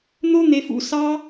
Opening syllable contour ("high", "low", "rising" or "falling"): high